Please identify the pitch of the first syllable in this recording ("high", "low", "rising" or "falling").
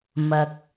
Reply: low